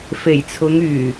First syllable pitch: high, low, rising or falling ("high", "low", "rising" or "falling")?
low